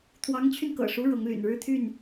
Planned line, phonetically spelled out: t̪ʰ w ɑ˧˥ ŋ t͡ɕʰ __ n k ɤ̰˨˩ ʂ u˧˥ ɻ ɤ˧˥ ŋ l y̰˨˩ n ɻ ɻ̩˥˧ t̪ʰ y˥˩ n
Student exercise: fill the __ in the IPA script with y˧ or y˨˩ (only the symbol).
y˧